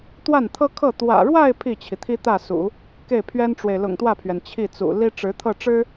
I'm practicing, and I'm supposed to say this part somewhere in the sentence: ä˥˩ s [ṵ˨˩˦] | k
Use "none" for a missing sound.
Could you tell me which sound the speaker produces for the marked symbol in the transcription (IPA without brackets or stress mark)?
ṵ˨˩˦